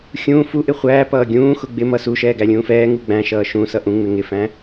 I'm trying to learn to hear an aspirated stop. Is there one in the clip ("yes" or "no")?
no